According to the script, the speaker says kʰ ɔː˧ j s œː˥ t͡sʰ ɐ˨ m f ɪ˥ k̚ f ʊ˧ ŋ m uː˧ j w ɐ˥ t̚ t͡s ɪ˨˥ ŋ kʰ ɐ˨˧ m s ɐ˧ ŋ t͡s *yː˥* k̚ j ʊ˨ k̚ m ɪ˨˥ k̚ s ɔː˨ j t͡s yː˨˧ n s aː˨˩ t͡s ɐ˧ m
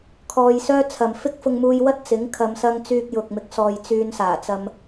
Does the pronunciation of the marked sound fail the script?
yes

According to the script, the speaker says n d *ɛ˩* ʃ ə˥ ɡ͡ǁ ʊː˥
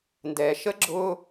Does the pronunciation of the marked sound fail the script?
yes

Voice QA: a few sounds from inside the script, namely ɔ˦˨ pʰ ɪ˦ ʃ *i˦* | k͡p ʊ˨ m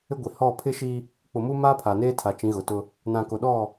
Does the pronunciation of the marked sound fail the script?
no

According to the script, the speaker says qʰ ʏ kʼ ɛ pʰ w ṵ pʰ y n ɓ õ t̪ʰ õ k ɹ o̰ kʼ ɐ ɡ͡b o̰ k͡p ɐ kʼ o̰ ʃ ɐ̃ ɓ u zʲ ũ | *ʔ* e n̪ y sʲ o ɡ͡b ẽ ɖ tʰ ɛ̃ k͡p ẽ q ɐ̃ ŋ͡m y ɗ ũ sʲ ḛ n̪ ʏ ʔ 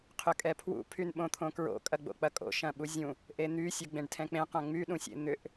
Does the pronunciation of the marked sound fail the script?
no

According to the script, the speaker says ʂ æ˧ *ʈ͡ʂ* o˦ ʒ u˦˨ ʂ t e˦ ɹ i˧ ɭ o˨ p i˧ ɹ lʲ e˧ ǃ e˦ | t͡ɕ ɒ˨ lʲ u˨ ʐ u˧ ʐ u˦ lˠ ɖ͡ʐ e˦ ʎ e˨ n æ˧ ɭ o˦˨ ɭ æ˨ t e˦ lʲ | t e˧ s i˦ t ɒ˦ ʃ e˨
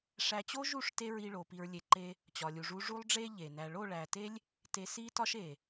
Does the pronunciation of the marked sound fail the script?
yes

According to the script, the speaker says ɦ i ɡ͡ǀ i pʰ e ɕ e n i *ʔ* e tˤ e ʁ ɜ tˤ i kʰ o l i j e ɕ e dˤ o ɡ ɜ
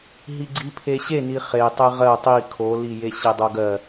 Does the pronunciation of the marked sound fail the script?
yes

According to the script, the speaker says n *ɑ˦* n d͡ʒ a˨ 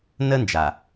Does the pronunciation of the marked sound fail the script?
yes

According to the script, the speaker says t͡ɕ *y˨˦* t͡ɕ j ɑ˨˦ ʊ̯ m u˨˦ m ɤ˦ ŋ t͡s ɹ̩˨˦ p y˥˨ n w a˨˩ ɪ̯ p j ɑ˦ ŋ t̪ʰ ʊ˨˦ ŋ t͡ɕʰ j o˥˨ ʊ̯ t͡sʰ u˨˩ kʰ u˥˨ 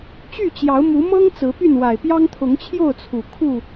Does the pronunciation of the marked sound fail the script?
yes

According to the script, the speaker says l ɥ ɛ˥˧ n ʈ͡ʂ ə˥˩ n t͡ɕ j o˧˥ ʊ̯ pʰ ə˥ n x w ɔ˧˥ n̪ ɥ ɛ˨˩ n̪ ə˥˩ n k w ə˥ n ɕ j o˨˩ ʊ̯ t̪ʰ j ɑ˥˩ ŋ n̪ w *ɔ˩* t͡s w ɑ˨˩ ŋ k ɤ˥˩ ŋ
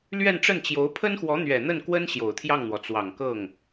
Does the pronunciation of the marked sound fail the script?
no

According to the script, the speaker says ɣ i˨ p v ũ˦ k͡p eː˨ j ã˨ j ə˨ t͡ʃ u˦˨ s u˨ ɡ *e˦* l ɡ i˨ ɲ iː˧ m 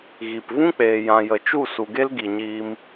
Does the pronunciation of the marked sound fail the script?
no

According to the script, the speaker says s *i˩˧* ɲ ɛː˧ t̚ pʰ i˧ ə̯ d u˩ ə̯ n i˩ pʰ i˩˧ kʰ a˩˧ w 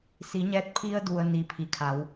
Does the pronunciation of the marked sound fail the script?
no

